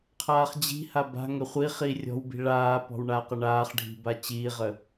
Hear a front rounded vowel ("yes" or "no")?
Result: no